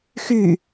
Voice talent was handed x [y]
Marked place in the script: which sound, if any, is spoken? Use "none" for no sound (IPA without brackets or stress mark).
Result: y